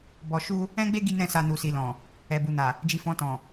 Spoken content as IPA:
b ɔ˧ ʃ u˦ | ɛ̃˦ ɡ͡b e˦ ɡ i˦ n ɛ̃˦˨ s a˧ n u˨ s i˨ l ɔ̃˨ | ɛ˨ b u˨ n a˨ | d͡ʒ i˧ f ɔ̃˧ t ɔ̃˨

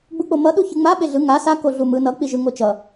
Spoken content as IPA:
ɡ͡b u k͡p o m ʌ ɗ u ç ɯ ŋ͡m a ɓ e ɮ ɯ ŋ a s a k o ɮ u m ɯ n ʌ k͡p i ʒ ɯ ŋ o t͡ʃ ʌ

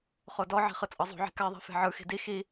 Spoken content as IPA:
χ o d ɔ ʕ i̤ χ ɯ t͡sʼ ɤ zˤ ṳ ʕ i̤ k a ðˤ i̤ f e̤ ʕ ɯ x i̤ d i x i

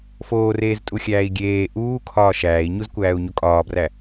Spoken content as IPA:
f oː r eː z tʼ u xʲ æː i̯ ɡʲ eː ʔ uː kʰ ɒː ʃ æː i̯ ɲ u z kʷ æː u̯ ɲ o kʼ ɒː b r æ

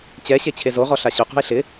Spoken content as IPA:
t͡ɕ ɛ ɕ e t͡ɕʰ e z o ʁ ɔ ɬ a ɕ ʊ q ṳ e̯ ɬ ɪ

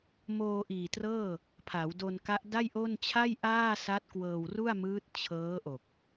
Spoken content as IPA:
m oː˧ ʔ iː˨˩ t r ɤː˥˩ | pʰ a˩˦ w d o˧ n k a˦˥ ʔ d a˥˩ j ʔ o˥˩ n t͡ɕʰ a˥˩ j ʔ aː˥˩ s a˦˥ t̚ k w ɤː˧ w r u˥˩ a̯ m ɯː˦˥ t̚ t͡ɕʰ ɤː˦˥ ʔ o˨˩ k̚

